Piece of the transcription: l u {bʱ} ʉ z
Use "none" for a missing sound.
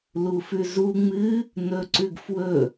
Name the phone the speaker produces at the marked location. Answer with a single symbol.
f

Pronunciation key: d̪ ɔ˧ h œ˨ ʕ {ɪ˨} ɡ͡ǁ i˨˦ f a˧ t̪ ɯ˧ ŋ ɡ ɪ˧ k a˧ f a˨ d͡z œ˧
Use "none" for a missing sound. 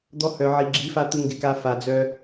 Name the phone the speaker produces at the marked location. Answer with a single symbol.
i˨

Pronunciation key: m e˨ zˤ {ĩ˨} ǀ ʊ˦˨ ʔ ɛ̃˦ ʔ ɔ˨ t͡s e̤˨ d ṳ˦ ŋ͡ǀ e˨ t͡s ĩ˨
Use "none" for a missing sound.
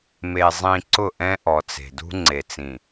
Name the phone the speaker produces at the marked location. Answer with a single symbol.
ĩ˨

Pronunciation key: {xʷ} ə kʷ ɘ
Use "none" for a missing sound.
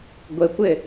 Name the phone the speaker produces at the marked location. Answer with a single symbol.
ɡʷ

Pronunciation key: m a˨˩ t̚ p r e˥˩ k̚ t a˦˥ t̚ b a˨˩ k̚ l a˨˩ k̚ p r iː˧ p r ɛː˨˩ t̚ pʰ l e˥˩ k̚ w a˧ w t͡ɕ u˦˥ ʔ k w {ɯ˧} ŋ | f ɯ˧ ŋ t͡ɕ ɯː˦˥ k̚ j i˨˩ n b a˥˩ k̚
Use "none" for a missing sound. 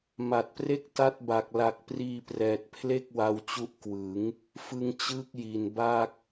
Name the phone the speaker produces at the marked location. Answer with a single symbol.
ɯ˩˦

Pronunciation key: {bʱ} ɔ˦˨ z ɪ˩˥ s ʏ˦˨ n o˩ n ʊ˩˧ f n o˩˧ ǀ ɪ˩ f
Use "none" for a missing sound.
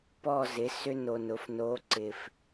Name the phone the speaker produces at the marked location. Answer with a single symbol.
p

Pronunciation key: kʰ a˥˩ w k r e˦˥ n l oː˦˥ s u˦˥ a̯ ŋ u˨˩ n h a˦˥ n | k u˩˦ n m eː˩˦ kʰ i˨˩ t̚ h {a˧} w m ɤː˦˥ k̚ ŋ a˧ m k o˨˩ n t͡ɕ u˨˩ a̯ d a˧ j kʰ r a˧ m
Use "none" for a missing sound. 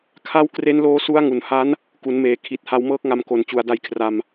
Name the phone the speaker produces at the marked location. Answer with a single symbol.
a˧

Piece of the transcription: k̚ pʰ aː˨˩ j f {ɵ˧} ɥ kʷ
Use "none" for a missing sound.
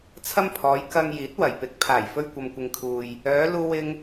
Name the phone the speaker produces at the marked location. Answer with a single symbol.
ɵ˧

